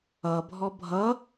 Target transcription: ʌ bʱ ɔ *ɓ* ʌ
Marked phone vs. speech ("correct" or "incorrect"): incorrect